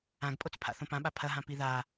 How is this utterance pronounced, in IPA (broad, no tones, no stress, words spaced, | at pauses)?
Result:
ãɡpʼot͡s pʰa̰θõpãɓa pʰɐɦã piða